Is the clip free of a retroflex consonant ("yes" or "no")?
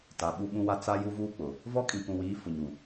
yes